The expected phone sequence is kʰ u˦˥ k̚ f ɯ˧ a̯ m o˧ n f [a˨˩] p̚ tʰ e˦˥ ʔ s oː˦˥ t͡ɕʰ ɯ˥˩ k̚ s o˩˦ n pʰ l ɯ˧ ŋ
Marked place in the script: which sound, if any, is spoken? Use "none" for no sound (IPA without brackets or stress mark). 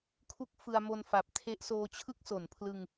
a˨˩